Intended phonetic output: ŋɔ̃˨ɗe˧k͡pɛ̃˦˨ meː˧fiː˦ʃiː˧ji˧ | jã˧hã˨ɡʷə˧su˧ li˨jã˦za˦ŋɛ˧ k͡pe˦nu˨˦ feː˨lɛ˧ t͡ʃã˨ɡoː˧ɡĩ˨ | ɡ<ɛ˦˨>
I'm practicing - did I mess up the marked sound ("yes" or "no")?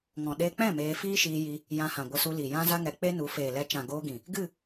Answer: yes